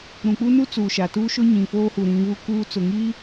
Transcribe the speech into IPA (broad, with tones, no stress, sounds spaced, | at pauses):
ɾ ũ˨ k͡p u˦ n u˦ t͡s uː˨ ʃ a˨ t uː˦ ʃ ʊ˦ ɲ ĩ˨ f oː˦ h u˨ ɾ ĩ˨˦ β u˦ k uː˦ t͡s ʊ˨ ŋ i˦